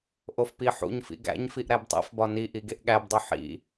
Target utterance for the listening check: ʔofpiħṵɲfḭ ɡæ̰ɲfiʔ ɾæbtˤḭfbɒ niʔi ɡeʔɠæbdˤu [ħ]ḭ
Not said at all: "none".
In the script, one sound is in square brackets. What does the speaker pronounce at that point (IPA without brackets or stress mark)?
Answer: ħ